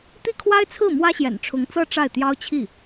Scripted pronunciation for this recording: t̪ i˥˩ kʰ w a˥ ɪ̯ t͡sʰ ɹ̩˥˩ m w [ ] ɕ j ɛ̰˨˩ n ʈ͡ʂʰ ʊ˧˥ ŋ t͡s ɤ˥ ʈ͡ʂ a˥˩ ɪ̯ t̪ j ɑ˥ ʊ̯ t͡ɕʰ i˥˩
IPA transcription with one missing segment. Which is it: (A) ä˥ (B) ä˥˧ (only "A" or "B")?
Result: A